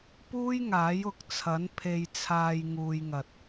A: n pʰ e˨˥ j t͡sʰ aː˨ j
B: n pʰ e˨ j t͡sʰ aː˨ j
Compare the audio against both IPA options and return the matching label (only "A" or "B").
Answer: B